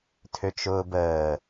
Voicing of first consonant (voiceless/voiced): voiceless